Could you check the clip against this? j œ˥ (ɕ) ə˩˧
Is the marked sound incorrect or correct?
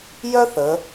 incorrect